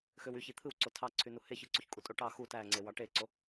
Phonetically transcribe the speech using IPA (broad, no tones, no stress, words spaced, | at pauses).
xøwyçi t̪ʰɯwǀo tʰɑǀʰynu heçɯǀuçkʼu tʼoʈɑ xu tæŋ͡ǀewɑ ʈeǀo